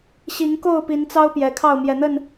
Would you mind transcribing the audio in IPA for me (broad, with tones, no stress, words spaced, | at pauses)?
ɕi˨˦ŋko˥˨ʊ̯ pi˨˦nt͡sɑ˦ʊ̯ pjɛ˨˩kʰɑ˥˨ʊ̯mjɛ˨˩n̪ə˥˨n